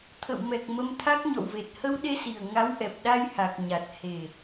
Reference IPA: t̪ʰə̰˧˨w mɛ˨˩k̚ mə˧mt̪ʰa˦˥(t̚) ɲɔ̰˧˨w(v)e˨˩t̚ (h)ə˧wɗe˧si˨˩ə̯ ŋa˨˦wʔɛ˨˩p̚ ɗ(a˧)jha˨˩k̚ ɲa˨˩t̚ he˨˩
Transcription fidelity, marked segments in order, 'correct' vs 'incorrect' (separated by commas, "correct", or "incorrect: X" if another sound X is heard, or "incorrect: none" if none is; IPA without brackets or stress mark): incorrect: k̚, correct, correct, correct